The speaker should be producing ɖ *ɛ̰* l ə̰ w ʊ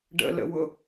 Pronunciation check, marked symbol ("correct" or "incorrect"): incorrect